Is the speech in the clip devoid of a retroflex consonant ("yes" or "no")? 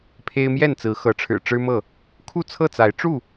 no